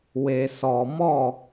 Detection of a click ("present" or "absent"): absent